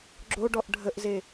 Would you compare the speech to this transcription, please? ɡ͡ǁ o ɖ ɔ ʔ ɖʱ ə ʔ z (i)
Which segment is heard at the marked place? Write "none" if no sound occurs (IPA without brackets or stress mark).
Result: e